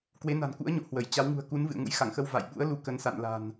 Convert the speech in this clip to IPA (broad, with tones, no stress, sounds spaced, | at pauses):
k w e˨˦ n a̤˨˩ n k ṵ˧˥ ə̯ ɲ o̰˧˨ h w ə˧˩ j t͡ɕ a˨˦ w ŋ ṳ˨˩ ə̯ k u˨˦ n v ɨ̰˧˨ ə̯ ŋ ṵ˧˥ j x a˧˩ ŋ x ə˧ w v a̰˧˨ j ɓ ṵ˧˥ ə̯ l u˨˦ k ə˨˦ n s a̰˧˨ n l a̤˨˩ n